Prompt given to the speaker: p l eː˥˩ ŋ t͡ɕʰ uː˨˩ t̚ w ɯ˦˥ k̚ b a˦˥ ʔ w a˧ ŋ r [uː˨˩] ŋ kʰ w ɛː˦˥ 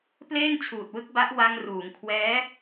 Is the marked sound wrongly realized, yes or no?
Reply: yes